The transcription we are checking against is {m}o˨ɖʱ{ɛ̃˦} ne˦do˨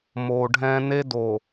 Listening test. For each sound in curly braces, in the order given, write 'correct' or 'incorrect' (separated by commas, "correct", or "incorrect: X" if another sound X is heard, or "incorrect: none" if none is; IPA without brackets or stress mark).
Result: correct, correct